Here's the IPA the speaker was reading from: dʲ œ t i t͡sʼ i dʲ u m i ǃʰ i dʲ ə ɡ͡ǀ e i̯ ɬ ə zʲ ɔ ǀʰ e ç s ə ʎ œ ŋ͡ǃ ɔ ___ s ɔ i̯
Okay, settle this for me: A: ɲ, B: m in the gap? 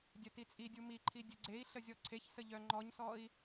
A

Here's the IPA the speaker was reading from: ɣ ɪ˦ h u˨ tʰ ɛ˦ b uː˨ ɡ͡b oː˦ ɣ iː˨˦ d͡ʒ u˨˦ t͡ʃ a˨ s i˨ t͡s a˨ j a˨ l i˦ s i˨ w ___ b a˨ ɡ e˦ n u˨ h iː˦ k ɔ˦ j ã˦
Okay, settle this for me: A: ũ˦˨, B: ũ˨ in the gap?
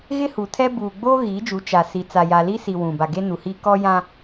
B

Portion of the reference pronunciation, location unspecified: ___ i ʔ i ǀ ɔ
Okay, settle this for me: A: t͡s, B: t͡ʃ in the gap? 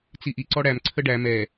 A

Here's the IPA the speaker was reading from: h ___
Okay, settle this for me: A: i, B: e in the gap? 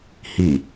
A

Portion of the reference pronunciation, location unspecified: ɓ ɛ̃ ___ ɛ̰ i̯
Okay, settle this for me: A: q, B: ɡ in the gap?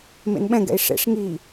B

